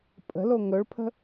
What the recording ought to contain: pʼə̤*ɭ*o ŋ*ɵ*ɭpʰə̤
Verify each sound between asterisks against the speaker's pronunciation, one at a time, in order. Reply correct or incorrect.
incorrect, correct

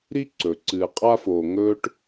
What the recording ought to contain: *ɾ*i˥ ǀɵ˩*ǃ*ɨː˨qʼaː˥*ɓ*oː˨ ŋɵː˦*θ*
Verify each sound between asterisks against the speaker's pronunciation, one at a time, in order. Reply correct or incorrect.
correct, incorrect, incorrect, incorrect

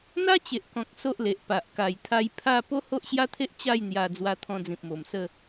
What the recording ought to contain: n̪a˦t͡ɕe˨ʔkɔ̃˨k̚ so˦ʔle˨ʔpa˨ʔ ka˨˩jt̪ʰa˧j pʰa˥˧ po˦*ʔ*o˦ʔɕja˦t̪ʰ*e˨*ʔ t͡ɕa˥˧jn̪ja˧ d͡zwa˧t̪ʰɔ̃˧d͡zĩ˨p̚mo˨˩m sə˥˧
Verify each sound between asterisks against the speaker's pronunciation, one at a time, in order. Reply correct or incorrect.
incorrect, incorrect

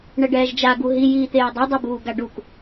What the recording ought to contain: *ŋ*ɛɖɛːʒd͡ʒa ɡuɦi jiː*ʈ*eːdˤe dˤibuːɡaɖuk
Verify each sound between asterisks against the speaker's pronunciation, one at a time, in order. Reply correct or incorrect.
incorrect, incorrect

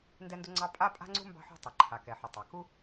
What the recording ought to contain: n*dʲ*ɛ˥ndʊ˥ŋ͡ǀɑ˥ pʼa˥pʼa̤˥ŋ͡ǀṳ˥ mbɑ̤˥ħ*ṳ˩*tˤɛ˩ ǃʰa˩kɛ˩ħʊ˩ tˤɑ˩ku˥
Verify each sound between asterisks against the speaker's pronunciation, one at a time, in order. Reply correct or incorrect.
incorrect, incorrect

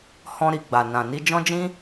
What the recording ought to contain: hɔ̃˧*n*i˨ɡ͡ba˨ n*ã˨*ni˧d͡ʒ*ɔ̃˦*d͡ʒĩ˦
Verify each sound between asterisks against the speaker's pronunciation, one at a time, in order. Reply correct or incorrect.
incorrect, correct, correct

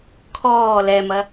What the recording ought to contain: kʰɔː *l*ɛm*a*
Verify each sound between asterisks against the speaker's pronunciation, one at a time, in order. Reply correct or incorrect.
correct, incorrect

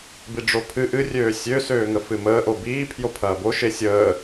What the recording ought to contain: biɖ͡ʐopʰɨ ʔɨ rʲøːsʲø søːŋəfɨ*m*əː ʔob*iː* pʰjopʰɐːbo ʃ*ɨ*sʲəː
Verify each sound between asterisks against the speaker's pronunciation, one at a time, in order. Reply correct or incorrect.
correct, correct, incorrect

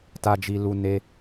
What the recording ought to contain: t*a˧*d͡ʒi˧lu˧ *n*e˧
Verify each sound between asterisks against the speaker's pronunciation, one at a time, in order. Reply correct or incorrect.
correct, correct

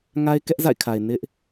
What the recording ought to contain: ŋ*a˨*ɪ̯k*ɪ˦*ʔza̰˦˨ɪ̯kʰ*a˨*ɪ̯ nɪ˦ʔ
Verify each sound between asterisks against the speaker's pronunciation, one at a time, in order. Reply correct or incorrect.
incorrect, incorrect, correct

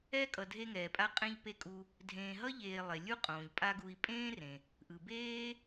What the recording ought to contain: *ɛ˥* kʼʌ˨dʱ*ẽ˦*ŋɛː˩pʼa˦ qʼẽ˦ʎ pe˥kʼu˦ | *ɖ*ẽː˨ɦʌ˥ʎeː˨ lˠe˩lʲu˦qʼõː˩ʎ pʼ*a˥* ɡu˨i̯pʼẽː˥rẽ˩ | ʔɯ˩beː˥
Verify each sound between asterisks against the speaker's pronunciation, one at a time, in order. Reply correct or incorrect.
correct, incorrect, incorrect, incorrect

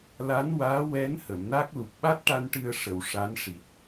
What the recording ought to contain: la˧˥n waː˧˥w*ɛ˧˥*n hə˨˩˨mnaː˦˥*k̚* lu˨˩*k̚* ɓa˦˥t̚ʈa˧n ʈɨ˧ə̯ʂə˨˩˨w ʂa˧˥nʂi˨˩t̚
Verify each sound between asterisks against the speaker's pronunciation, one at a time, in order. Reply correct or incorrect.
correct, correct, correct

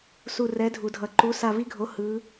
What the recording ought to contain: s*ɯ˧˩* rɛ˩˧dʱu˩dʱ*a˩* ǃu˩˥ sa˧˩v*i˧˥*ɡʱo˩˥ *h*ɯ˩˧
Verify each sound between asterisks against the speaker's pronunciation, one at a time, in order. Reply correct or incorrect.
incorrect, incorrect, correct, correct

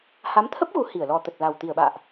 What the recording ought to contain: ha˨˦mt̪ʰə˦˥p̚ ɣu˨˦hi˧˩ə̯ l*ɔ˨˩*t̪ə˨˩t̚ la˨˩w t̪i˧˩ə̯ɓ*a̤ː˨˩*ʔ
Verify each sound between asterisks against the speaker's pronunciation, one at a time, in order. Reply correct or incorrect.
correct, incorrect

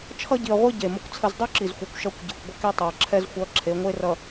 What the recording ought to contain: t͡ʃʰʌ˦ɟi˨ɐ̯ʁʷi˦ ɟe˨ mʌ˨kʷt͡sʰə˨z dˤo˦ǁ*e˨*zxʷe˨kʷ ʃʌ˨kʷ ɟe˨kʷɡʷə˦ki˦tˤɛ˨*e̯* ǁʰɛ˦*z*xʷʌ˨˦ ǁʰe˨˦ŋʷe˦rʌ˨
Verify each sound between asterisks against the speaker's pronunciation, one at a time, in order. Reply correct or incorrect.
incorrect, incorrect, correct

